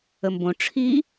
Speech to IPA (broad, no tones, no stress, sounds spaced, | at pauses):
ə m b õ ʈ͡ʂʰ i